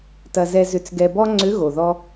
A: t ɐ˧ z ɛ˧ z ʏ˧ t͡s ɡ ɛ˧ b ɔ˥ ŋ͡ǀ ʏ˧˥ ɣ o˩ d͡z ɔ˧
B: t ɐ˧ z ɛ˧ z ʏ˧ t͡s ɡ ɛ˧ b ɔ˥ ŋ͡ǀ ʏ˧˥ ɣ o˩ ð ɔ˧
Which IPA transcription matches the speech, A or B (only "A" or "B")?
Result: B